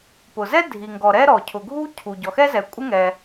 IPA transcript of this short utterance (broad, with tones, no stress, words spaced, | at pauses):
pʊ˩zɛ˥ dʱi˩ŋɡɔ˩ɾɛ˥ ɾɔ˩ cʰʊ˩ɡʱu˥ cʰu˩ ɟɔ˩xɛ˥zɛ˩ kʷʼɪ˥ŋɛ˩